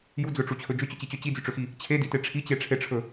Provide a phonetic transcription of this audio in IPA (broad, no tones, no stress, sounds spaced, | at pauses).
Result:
j u d͡z ɵ ʈ͡ʂ u t͡ɕʰ ɵ d͡ʒ ʏ t͡ɕ ʏ t͡ɕ i t͡ɕ ɵ t͡ɕ i d͡z ʏ ʈ͡ʂ ʏ x i | t͡ɕʰ e d i t e ʈ͡ʂʰ i t͡ɕ e ʈ͡ʂʰ e ʈ͡ʂʰ ɵ